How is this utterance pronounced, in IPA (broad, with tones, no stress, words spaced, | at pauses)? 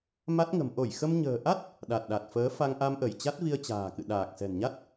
ma˦˥t̚ŋə̤˨˩m ʔo˧˩jxə˧m ɲə̤ː˨˩ʔa˦˥t̚ | ɗa˨˩t̚ɗa˨˩t̚fəː˨˦ fa˧ŋʔa˧mʔə˧˩j t͡ɕa˦˥t̚vi˧ə̯t͡ɕa̤ː˨˩kɨ̰˧˨ ɗaː˨˩k̚sɛ̤˨˩nɲa˦˥t̚